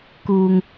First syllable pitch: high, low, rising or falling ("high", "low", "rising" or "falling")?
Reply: low